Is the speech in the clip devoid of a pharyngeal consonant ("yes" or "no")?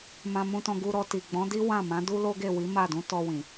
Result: yes